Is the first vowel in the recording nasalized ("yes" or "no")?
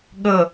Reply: no